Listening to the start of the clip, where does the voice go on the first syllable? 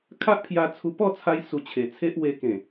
high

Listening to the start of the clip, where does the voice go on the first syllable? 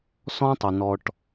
high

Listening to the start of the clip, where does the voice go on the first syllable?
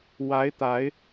rising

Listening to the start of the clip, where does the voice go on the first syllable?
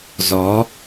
rising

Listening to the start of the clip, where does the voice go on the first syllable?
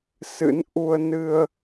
rising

